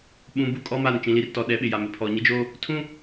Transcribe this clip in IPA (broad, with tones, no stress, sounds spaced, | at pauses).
ɓ ũ˨ b u˦ kʼ ɔ˦ m a˦˨ n t͡ʃ ĩ˨ l i˨ r t ɔ˨ ɗ ɛ˨˦ ɓ ɪ˨ j a˨ m ɪ˨ pʰ ɔ˨ ɲ ɪ˦ d͡ʒ oː˦ | tʰ ũ˦